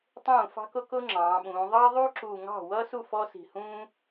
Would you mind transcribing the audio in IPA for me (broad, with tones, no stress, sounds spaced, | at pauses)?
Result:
tˤ ũː˥˩ f ɑ̤˥ k ʊ˥ k ʊ˥ ŋ͡ǁ ɑ̃ː˩˧ ɓ ũː˩˧ ðˤ ɑ˥ ðˤ u˥ ǁ u˨˩ ŋ ɑ̤˥˩ w ʌ˥ s u˥˩ f ɔ˥ s i̤˨˩ h ũː˥